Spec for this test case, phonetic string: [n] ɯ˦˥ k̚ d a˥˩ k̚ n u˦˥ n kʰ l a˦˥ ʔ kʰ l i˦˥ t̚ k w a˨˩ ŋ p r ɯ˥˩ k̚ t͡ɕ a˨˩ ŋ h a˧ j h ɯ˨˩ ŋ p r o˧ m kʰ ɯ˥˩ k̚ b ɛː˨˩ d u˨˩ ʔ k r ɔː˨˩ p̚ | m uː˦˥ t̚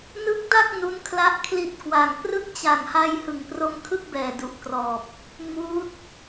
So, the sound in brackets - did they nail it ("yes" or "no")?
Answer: yes